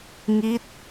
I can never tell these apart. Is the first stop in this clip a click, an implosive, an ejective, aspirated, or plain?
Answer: plain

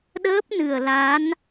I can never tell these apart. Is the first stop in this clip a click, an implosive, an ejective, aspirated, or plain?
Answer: implosive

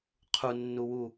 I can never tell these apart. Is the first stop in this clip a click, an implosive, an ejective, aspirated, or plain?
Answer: aspirated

